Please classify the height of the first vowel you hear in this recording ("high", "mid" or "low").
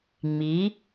high